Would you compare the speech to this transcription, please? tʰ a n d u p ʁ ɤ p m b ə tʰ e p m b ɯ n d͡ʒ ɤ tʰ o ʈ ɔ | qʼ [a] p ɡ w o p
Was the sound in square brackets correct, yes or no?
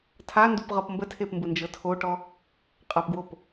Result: yes